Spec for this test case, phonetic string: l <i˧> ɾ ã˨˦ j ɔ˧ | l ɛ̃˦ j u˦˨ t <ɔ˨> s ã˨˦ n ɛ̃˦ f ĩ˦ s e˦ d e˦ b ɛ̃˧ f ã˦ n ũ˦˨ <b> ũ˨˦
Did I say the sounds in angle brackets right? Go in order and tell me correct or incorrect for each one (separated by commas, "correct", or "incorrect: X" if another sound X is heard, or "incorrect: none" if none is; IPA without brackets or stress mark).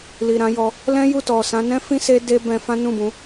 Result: incorrect: i˨, correct, correct